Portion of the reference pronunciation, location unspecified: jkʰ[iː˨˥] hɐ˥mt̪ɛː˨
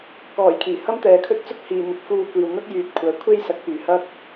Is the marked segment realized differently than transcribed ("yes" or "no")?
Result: yes